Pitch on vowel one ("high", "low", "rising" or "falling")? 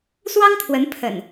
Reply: high